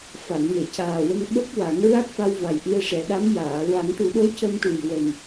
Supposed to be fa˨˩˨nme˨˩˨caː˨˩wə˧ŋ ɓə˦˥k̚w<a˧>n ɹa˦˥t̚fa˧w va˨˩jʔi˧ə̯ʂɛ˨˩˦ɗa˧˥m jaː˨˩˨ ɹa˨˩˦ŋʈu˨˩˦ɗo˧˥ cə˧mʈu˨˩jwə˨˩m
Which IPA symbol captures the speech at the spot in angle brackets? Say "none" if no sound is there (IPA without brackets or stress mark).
a˨˩˦